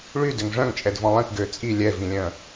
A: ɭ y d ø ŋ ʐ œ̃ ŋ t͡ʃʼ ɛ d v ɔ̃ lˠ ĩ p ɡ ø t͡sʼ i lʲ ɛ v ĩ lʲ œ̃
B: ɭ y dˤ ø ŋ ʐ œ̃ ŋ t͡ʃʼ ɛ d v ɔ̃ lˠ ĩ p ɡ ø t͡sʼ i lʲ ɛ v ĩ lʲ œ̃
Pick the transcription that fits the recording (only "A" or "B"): A